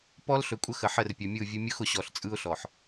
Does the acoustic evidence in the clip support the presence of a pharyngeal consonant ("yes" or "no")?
yes